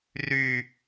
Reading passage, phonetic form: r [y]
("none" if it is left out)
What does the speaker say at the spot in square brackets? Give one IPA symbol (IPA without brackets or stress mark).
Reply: y